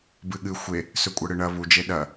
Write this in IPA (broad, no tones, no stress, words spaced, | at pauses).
bɨɠɨ xʷe | sɵkʷʼɐɽɨɳɐ βud͡ʒe ɗɐ